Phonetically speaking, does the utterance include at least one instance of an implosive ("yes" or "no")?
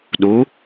yes